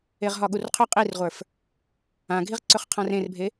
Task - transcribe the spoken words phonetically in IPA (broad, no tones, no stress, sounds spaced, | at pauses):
e ʁ ɦ ɒ ɠ u r qʰ ɵ qʼ i r ʁʷ ə˞ f | ã ɡʱ i ʁ ǀ ɵ χ qʰ ã r ẽ r bʱ e